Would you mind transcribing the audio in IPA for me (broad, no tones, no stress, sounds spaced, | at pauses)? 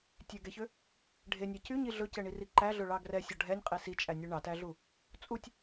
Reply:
tʲ ø ɡ ɛ ç ø | ɖʱ e nʲ æ c y ɲ i ɮ ɵ c ɛ ɳ i r i ǃ æ ɮ ɵ ɭ ɑ ɡ r ɛ sʲ ɔ ɖʱ ɛ nʲ qʼ e s i t͡ʃʼ æ nʲ ɵ ɳ ɑ t æ ɮ u | t͡sʼ u tʲ